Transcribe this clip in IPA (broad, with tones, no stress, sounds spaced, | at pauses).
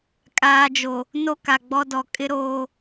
kʼ aː˨ d͡ʒ o˨ | n o˦ k a˨ ɡ͡b ɔ˦ d ɔ˨˦ kʼ ɪ˦ ɾ oː˦